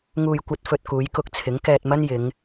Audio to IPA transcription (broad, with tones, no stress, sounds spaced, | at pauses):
ŋ uː˧ j kʷ ɐ˧ t̚ f ɵ˧ t̚ k uː˨˧ j k ʊ˧ k̚ t͡sʰ ɪ˨˥ ŋ k ɛː˧ t̚ m ɐ˥ n j ɪ˨˧ ŋ